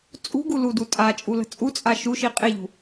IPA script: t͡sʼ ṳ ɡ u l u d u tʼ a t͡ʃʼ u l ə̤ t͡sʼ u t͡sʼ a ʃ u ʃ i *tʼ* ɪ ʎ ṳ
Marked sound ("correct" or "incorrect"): incorrect